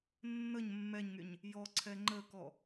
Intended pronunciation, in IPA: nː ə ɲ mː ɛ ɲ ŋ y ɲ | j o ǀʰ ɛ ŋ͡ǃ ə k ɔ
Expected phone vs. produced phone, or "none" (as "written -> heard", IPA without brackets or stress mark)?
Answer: o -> ɔ